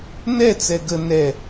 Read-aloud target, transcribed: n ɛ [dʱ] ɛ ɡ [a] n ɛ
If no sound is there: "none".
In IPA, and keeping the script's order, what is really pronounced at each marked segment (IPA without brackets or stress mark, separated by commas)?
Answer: t͡s, ə